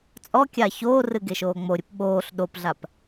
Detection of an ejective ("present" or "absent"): present